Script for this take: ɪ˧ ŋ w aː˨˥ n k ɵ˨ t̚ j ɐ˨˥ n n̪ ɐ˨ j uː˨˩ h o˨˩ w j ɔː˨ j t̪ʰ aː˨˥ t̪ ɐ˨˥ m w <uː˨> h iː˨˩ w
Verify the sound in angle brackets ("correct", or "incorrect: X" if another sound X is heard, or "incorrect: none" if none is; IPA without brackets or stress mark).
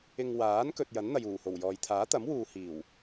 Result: correct